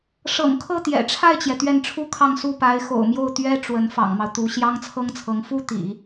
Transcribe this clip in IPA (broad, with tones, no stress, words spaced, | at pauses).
ʂɤ̰˨˩ŋkʰɤ˥˩ t̪jɛ̰˨˩ʈ͡ʂʰa˥˩ɪ̯t͡ɕjɛ˩ t̪ɥɛ˥˩nʈ͡ʂʰu˥kʰɑ˥˧ŋ su˥˩pa˧˥ɪ̯ xo̰˨˩ʊ̯mjo˥˩ʊ̯ t̪ɥɛ˥ ʈ͡ʂwə˧˥n fɑ̰˨˩ŋmɑ˦ʊ̯t̪u˧˥ ɕjɑ˥ŋt͡sʰɤ˥ŋt͡sʰɤ˧˥ŋ fu˥ t̪ḭ˨˩˦